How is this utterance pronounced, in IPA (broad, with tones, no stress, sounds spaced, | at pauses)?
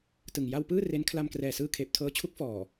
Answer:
t ɯ˨˩ ŋ j a˧ w p ɯː˥˩ r e˦˥ n kʰ l a˧ m k r ɛː˨˩ s ɯː˧ kʰ eː˨˩ p̚ tʰ ɤː˧ t͡ɕʰ u˦˥ k̚ f ɔː˨˩